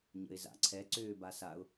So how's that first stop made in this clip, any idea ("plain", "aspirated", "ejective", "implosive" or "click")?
click